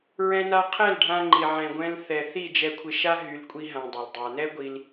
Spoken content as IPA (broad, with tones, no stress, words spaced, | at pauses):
ɹɛ̃˧na˧ qʰɛ˦˨lɖʱã˧ŋ͡ǃi˨ ʕɛ̃˨ɡʷɛ̃˧l θɛ˨ θi˦˨d͡ʒɛ˧kʷʰɪ˧ʃa˦ ɦy˧lkʷʼi˦ ɦã˧dˤɵ˨ldˤa˧ nɛ˦ ɡʷi˧l